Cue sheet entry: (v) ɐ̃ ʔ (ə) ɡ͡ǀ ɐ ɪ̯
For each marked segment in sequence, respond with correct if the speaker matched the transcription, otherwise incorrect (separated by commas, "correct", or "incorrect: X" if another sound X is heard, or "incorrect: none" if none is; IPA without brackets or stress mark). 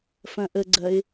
incorrect: f, correct